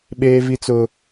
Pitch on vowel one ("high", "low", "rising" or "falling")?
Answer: high